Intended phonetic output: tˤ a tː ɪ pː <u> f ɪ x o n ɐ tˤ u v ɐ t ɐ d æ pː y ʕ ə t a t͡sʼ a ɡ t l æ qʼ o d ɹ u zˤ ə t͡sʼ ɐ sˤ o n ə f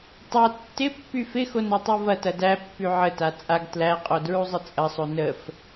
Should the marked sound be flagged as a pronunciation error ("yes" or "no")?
yes